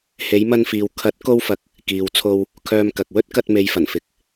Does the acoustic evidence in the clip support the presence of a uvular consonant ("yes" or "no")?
no